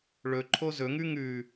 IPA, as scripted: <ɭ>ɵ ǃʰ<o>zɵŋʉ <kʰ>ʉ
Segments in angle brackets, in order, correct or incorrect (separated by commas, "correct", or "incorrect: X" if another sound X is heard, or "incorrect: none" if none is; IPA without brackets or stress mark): correct, correct, incorrect: ŋ